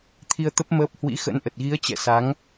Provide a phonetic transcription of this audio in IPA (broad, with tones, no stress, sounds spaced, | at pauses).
t̪ʰ i˧ ə̯ t̪ ə˦˥ p̚ m əː˦˥ p̚ h w ḭ˧˥ x ə̰˧˥ n ʔ ə˨˩ t̚ ɣ i˨˦ ə̯ t͡ɕ ɛ̰˧˨ s a˨˦ ŋ